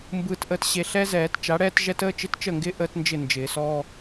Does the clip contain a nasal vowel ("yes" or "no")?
no